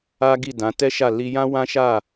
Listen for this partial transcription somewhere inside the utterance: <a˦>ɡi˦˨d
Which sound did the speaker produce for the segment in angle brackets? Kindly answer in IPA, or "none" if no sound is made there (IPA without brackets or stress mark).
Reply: a˦